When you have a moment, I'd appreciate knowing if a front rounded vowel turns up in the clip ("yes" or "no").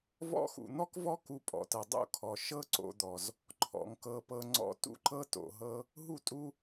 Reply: no